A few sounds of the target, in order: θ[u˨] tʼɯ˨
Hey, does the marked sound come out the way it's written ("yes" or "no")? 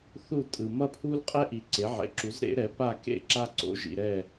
no